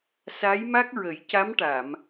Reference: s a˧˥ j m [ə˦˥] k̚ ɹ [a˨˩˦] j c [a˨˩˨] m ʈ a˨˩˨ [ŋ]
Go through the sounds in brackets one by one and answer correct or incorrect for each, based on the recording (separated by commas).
incorrect, incorrect, incorrect, incorrect